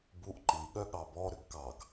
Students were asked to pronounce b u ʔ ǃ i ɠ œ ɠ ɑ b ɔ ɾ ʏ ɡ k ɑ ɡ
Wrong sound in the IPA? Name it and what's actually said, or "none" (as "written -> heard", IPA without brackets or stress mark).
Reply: none